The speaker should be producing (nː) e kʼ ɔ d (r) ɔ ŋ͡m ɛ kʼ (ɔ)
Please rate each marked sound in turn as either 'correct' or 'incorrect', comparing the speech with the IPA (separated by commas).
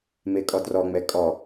incorrect, correct, correct